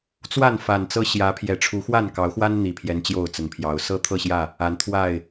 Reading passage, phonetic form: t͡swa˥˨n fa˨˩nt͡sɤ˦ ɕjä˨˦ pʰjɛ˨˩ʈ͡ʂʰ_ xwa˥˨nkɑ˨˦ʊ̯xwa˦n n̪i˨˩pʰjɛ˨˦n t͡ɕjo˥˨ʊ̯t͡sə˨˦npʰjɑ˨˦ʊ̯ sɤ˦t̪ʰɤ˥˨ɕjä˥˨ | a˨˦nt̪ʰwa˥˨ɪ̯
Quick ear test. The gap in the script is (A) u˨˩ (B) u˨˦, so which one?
B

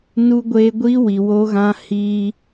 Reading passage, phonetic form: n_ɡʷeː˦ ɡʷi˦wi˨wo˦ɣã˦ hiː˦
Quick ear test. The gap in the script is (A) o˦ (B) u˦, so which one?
B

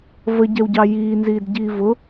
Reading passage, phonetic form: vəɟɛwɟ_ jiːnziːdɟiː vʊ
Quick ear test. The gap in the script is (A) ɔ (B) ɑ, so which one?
B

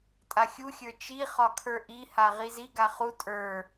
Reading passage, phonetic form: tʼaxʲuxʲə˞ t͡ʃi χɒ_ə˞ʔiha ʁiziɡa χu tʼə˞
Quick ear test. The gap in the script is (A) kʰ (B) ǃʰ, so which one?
A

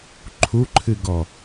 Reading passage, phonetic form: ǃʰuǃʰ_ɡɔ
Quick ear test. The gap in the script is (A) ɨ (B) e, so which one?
A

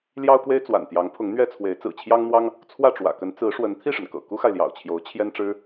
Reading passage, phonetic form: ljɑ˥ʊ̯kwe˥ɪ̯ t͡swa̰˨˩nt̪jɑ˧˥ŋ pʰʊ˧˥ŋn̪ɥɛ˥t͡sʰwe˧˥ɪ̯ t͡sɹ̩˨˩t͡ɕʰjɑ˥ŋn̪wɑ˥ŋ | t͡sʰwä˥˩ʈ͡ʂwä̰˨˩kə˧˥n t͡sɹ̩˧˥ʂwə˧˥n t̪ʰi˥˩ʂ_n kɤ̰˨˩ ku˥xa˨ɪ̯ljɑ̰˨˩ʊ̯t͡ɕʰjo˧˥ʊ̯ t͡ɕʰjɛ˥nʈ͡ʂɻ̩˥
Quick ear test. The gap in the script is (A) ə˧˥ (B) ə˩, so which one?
B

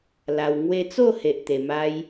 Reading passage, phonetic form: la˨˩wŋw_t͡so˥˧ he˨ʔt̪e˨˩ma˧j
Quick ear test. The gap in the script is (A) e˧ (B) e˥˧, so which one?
A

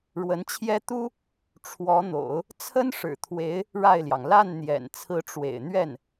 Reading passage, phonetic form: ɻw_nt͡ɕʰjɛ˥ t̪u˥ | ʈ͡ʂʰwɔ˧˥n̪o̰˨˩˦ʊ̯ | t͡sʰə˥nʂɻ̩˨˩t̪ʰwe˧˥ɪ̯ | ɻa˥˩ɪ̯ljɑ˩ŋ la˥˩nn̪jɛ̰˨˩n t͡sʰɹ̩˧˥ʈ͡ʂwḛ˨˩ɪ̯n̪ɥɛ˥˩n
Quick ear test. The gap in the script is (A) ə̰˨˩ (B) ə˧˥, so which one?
B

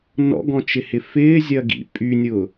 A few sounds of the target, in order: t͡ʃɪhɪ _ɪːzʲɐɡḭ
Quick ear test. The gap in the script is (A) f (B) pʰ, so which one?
A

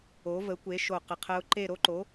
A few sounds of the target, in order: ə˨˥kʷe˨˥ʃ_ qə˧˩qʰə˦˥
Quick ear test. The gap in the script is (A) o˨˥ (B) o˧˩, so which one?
B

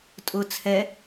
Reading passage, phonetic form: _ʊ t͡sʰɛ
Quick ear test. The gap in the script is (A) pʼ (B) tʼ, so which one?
B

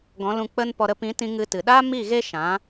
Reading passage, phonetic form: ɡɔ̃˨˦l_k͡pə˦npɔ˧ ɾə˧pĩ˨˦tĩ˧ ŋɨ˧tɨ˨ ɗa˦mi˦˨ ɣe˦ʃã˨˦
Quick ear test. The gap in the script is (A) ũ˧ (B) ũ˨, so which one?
A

